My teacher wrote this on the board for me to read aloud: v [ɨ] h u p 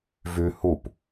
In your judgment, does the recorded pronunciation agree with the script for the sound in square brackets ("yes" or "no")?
no